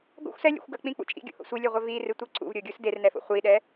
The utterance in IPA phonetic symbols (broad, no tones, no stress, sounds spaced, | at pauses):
ɡ o̰ xʷ s ɛ lʲ ḛ xʷ ɡ ɐ k͡p ĩ k͡p ṵ t͡ʃʼ ḭ ɡʲ o̰ h o̰ sʷ i lʲ œ ʁʷ œ v i r ɨ tʷ i ǀ ṵ v ɾʲ o ɡʲ u s d e r n ɛ f o̰ χʷ i ɗ ɛ